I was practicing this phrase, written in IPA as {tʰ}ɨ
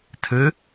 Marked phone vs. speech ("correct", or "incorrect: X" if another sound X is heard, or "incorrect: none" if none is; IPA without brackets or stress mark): correct